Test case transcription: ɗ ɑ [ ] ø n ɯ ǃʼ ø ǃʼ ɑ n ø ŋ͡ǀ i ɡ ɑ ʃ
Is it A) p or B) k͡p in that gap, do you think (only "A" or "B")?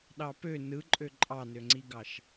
A